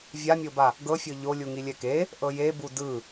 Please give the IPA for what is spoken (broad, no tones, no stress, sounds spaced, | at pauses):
vʲ a mʲ o b a | ɡ ɤ fʲ ɤ ʎ o lʲ u ŋ i lʲ ɛ k e | ʔ ɤ j e b u d ɯ